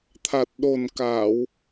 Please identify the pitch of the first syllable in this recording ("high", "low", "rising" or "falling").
low